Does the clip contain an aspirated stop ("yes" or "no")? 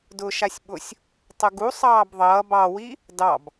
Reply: no